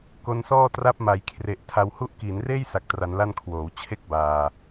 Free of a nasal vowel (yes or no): yes